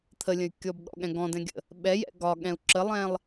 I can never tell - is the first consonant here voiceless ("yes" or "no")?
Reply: yes